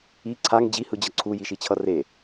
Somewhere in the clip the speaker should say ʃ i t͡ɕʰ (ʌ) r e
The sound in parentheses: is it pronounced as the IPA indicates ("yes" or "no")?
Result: yes